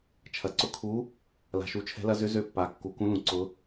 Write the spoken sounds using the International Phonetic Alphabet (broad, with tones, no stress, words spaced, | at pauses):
t͡ʃʰɐ˩ǀʊ˨˦ kʰu˨˦ | la̤˩ʃu˩t͡ʃʰɛ̤˨˦lɐ˨˦ zʏ˨˦zø˨˦pːa˩ kːu˩kũ˨˦lũ˩ǀʊ˨˦